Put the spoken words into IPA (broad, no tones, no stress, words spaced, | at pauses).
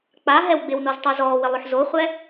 k͡pa ɦɛwɡ͡bɪwnoz tˤozɔːwɪ lˠʊħzoχʷɛ